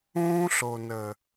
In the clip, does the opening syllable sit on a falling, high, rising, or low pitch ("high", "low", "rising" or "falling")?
high